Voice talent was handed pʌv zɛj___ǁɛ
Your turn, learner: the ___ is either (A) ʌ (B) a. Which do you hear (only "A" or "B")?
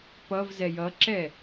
A